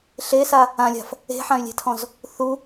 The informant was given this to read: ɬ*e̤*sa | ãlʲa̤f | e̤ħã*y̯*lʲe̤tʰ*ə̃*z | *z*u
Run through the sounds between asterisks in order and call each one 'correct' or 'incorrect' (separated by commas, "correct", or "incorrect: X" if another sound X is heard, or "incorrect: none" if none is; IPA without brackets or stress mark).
incorrect: e, correct, incorrect: ɔ̃, incorrect: θ